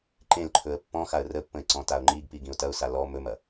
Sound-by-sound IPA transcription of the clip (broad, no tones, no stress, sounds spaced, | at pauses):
ǃ ẽ l ǃʰ ɵ ə̯ pː ɔ̃ x a ə̯ r ə pː ə̃ ɪ̯ ǀ ɔ̃ t a ʊ̯ ŋ͡ǃ i ɡ p i ɡ ĩ ʊ̯ t ɐ ʊ̯ s a l ɔ m ɵ m ɐ